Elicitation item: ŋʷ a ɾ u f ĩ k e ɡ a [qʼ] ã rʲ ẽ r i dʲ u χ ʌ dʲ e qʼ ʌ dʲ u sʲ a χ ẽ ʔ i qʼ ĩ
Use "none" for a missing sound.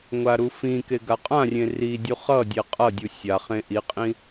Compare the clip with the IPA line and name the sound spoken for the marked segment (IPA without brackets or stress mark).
qʼ